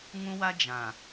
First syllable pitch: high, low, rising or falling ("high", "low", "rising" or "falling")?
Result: high